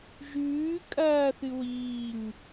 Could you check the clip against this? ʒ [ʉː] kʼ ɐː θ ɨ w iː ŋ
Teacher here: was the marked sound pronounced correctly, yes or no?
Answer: yes